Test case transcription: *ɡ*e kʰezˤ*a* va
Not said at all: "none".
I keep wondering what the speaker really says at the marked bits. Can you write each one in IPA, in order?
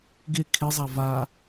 ɡ, a

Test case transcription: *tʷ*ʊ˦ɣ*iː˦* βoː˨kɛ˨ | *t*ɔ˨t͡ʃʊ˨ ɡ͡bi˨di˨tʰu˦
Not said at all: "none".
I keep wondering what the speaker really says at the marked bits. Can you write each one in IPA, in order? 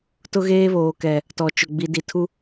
t, eː˦, t

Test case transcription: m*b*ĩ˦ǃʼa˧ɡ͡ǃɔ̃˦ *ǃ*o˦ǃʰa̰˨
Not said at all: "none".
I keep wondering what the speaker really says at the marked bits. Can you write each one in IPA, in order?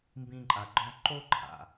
b, ǃ

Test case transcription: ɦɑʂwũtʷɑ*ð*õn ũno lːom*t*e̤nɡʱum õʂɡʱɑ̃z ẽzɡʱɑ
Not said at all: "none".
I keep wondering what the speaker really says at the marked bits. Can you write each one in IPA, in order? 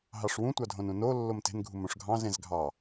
dʱ, t

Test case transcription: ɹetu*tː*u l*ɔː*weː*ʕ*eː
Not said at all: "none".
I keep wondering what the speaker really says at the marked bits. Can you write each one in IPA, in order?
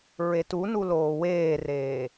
n, oː, r

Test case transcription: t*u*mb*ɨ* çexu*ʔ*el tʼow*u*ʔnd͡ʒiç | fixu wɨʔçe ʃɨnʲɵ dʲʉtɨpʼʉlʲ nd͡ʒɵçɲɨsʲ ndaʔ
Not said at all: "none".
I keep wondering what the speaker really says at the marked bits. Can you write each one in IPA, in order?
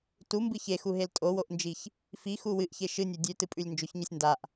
u, ɨ, ɦ, o

